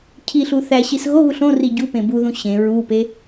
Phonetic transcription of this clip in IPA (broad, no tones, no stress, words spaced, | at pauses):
cʰiɬu θæɕis ɣoɣuɬ õri ɟupẽ buðũ ɕẽ ɹupe